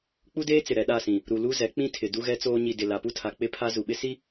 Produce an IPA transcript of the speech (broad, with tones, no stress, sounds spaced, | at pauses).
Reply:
k͡p u˦ d eː˦ t͡s ɪ˨ ɾ ɛ˨ ɗ a˦˨ s ĩ˨ | ɾ u˨ l u˦ z ɛ˨˦ k͡p ĩ˦ tʰ ɪ˨ d u˦ ɣ ɛ˦ t͡s oː˦ ɲ i˨ d ɪ˨ l a˨ p u˦ tʰ a˨ k͡p ɪ˦ pʰ a˦ z u˨ ɓ ɪ˦ s i˦